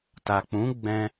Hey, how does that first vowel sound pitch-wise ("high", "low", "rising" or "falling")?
low